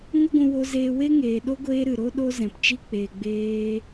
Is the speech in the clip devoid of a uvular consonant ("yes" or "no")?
yes